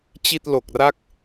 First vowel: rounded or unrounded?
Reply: unrounded